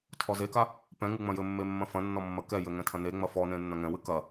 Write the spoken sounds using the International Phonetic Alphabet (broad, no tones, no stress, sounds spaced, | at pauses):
tʰ ɔ z e k a | p ɛ̃ ŋ ɨ ŋ͡m ɐ̃ j ɘ mː e mː ɐ̃ f ɐ̃ nː ɔ mː ɐ k ɛ j ɘ ŋ ɛ̃ tʰ ɐ̃ n e ŋ͡m ɐ f ɔ n ẽ nː ɐ̃ ŋ ɛ̃ w ɨ k ɐ